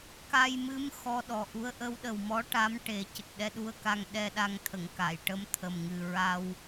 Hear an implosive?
yes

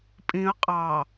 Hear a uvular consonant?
yes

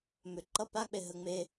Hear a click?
yes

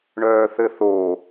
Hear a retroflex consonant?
yes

